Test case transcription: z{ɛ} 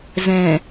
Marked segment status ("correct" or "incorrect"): incorrect